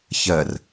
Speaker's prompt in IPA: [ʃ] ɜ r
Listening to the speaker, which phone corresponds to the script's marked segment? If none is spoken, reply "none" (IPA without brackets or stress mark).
ç